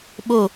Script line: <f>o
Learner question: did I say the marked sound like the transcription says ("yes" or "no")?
no